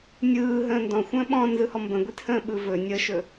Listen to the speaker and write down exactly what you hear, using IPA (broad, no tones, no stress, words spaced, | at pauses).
nʲɯːɦə̃ː ndɔ̃xʷə̃ː ɓɔ̃nzɯhɔ mbə̃ɡʷithə̃ːɓɯ vɵ nʲəʃɵ